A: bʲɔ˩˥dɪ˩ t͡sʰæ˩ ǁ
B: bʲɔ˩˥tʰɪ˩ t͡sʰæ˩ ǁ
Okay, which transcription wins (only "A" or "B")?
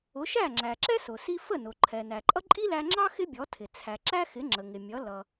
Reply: B